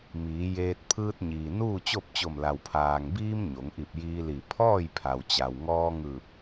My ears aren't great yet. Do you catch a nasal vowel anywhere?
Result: no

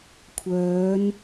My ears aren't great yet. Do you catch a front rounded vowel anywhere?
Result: yes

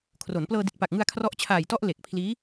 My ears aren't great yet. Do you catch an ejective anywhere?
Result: no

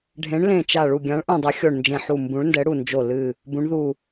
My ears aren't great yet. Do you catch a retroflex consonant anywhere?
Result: yes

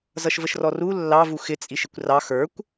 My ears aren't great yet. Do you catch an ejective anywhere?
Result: yes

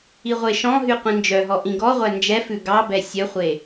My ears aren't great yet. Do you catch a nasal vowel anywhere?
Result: yes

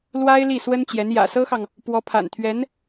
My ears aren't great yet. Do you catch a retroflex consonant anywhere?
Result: no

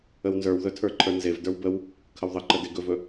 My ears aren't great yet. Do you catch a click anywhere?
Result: yes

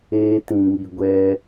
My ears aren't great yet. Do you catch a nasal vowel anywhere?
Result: yes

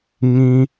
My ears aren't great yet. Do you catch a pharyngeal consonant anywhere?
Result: no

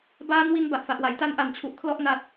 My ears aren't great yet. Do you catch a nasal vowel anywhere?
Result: no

